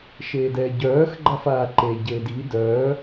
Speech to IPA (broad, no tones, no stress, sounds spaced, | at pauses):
ʃ eː d ɛː ɟ œː x ɡ͡ǃ a f aː ǃ e ɟ eː d i d œː